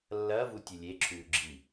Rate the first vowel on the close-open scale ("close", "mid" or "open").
open